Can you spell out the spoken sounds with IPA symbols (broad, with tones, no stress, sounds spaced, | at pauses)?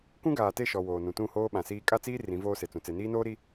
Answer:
k ũ˦ ɡ aː˨ t e˦˨ ʃ ɔ˨ w oː˨ n ũ˨ t ũ˦˨ h oː˦ ɓ ã˨ s iː˦ kʼ a˦ t͡s iː˦ r ĩ˨˦ v oː˦ s e˨ t͡s ũ˨ t͡s e˨ n iː˦ n oː˦ ɾ i˦